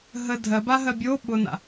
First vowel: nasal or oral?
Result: oral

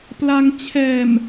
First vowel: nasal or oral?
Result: oral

